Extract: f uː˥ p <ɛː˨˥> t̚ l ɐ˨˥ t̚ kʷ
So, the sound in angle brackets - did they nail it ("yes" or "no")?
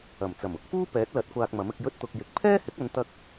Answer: yes